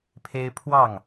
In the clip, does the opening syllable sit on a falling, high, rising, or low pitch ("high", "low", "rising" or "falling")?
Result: high